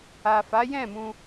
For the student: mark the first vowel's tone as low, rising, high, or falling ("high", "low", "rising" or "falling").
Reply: low